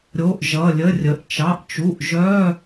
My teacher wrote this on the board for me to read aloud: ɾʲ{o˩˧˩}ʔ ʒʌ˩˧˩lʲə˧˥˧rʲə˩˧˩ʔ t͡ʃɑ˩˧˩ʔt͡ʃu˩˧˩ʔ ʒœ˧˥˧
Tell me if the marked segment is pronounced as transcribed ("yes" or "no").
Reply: yes